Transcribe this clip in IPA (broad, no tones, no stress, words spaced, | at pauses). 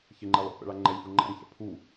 çɪŋ͡ǃɛ lˠo̰pɛ̰ɭa ŋ͡ǃɛlʲfu ŋ͡ǃa̰ŋçɛ̰ pʰu